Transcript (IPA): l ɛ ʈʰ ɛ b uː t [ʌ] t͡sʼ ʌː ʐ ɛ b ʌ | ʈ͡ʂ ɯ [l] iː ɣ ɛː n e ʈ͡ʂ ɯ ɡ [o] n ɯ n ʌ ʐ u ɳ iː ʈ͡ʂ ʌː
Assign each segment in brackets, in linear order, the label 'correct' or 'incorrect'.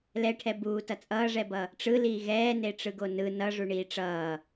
correct, correct, correct

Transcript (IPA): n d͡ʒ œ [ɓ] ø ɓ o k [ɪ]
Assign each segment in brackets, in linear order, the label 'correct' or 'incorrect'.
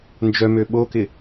incorrect: m, correct

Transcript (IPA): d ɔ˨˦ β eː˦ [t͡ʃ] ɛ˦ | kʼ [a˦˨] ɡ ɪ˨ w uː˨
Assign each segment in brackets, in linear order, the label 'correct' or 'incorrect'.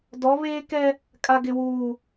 incorrect: k, incorrect: a˨

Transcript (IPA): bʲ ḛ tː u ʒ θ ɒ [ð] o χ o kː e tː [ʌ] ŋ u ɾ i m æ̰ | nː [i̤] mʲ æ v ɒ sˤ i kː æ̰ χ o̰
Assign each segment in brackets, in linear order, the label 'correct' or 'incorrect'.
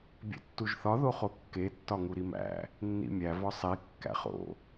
correct, incorrect: ɒ, incorrect: ḭ

